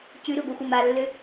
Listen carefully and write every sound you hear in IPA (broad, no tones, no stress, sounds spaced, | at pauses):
c ʉ ɾ ʉ ɡʷ i xʷ ʌ m a lː ø